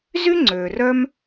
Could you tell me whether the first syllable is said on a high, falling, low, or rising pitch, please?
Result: high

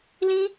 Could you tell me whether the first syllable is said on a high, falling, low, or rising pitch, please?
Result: high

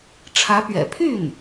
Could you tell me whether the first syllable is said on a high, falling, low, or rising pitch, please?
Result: rising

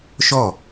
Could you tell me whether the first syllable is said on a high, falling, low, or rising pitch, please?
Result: falling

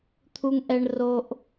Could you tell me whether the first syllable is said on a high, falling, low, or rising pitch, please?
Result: high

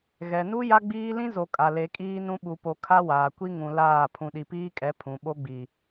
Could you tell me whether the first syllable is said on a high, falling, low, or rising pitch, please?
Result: low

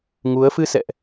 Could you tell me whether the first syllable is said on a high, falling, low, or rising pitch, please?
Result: rising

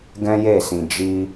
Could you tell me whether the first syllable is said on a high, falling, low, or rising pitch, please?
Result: high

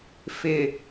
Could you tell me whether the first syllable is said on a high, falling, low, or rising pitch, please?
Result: low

